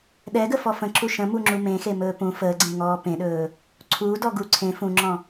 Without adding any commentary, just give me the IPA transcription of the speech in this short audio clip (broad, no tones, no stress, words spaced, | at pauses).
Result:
ɗɛɡəfɔ fə̃ǁu ʃə̃muŋ͡ǁu mẽxemɵː pũ fəːɡ͡ǀẽŋɔː pẽɗɵː | ǀʰuːdɔɡu ǀʰẽ fũŋ͡ǁɔ̃